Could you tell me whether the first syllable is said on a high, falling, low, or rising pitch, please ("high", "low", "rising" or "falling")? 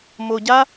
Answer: low